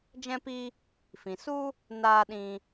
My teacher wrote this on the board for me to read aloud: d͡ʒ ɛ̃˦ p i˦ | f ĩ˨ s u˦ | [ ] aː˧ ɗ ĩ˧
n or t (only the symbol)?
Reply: n